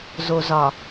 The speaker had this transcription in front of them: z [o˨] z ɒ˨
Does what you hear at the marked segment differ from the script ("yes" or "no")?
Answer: no